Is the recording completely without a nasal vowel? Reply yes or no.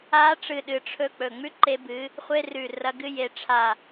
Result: yes